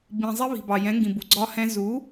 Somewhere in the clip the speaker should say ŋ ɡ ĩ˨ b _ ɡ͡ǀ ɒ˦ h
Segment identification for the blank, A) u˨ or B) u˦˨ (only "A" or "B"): A